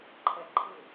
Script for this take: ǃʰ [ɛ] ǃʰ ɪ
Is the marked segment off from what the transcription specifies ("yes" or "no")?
no